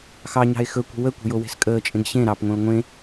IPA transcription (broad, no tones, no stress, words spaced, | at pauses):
xɑ ɲɑ̤e̯xɵkʷə̤ wəkʷə̤ jowe̤skʼəːt͡ʃʼẽɡ ɕẽ ɾɑpŋʷẽo̯ ŋʷẽ